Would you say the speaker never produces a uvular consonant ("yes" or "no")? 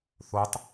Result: yes